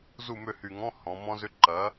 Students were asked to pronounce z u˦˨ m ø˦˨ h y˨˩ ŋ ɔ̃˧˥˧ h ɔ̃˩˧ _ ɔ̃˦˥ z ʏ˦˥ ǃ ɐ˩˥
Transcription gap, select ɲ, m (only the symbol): m